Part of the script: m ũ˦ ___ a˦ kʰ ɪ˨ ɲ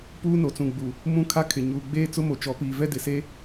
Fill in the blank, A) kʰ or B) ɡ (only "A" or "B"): A